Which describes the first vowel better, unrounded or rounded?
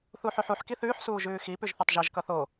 rounded